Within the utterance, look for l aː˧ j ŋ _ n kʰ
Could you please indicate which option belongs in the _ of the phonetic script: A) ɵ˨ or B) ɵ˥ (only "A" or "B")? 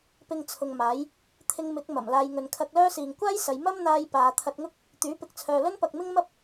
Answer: A